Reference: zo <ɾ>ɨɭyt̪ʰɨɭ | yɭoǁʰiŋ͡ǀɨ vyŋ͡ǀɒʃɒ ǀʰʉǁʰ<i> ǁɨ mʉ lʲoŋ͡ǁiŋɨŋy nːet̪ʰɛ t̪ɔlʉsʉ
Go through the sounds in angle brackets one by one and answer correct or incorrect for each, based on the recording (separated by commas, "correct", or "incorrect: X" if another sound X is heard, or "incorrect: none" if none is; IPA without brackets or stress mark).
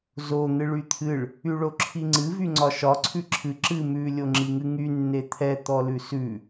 incorrect: n̪, incorrect: ɨ